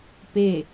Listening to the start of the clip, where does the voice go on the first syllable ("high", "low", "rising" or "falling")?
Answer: falling